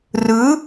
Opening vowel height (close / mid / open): close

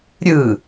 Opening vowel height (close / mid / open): close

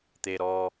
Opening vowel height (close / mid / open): mid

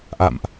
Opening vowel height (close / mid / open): open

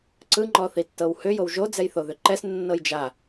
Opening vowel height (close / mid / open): close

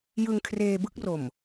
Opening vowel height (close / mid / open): close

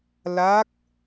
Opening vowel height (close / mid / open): open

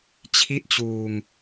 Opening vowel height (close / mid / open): close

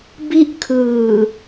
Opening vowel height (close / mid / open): close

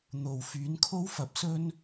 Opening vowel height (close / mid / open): mid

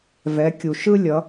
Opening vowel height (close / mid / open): mid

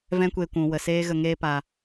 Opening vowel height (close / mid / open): mid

